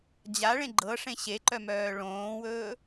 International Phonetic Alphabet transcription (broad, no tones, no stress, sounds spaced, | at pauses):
d͡ʑ a ɭ ẽ ɡ͡ǃ ɤ ʂ ẽ ɕ e ǃ œ m œː ɭ õː w ɵː